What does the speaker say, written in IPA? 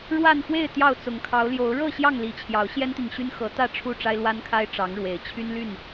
ɻ w a˥˨ n x w e˥˨ ɪ̯ t̪ j ɑ˥˨ ʊ̯ t͡s ʊ˨˩ ŋ kʰ ɑ˨˦ ʊ̯ l j o˨˦ ʊ̯ ɻ ɤ˥˨ ɕ j ɑ˥˨ ŋ l i˨˦ t͡ɕʰ j ɑ˨˦ ʊ̯ ɕ j ɛ˦ n t̪ i˨ ŋ ɕ y˦ n x ɤ˨˦ t̪ ä˥˨ ʈ͡ʂʰ u˥˨ ʈ͡ʂ a˦ ɪ̯ l w a˦ n kʰ a˦ ɪ̯ ʈ͡ʂ ɑ˨˦ ŋ ɻ w e˨˩ ɪ̯ t͡ɕʰ y˦ n l y˥˨ n

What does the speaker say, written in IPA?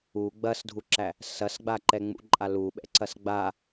u ɡ͡b ɐ s dʱ u ǁ æ | s ɐ s ɡ͡b a ǃ ɛ ŋ͡m ṵ ǃʼ a l u ɓ ɛ̰ ǀ ɐ s ɡ͡b a

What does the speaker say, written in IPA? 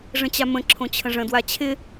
ʐ ə̃ t͡ɕ a m ə̃ ǁʰ õ t͡ɕʰ ə̃ ʐ ə̃ d w a t͡ɕʰ ɪ

